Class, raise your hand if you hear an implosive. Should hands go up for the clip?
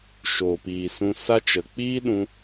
yes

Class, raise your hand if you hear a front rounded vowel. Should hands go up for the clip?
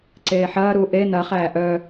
yes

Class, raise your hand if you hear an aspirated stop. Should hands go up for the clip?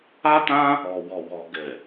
no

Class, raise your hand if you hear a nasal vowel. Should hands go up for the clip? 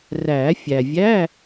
no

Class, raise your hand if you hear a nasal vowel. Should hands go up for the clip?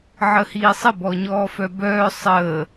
no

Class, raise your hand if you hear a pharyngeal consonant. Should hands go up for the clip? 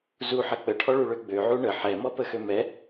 yes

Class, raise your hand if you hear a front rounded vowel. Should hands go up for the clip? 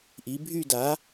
yes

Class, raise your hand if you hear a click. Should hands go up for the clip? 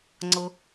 yes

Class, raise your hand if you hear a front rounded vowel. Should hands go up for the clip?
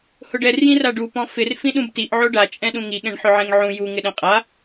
no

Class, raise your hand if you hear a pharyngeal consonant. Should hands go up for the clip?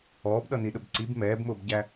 no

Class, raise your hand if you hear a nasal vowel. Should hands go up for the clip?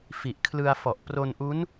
no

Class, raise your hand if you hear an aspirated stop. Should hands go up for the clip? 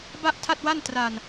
yes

